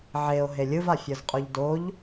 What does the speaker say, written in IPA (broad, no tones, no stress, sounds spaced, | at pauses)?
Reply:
ʕ e o̯ ɦ e lʲ ɯ v a fʲ ɤ z qʼ u ʎ d o ʎ